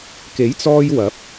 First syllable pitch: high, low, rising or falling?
rising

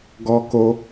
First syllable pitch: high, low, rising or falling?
high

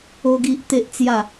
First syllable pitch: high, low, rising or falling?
high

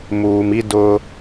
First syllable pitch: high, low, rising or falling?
low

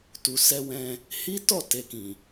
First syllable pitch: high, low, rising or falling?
low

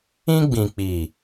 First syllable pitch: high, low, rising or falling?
high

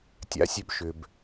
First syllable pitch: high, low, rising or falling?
rising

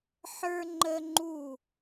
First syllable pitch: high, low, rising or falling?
high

